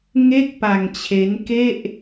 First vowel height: mid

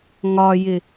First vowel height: low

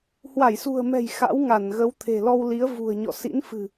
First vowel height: low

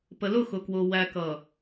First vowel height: mid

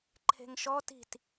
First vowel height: mid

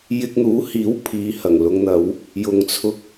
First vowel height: high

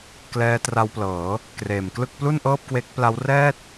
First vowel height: mid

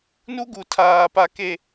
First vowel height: high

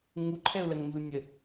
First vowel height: high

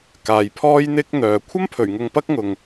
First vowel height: low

